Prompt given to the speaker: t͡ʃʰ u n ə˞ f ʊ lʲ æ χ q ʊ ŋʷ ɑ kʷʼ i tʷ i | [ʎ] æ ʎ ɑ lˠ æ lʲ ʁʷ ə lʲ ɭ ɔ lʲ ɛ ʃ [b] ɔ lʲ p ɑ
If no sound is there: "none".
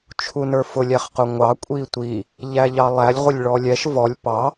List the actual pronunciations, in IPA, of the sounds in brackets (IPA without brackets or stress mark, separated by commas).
ʎ, v